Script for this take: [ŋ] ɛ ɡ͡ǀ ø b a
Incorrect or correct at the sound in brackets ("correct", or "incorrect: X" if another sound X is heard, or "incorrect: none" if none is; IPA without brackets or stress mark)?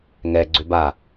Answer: correct